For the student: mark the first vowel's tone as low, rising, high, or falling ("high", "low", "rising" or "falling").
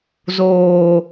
high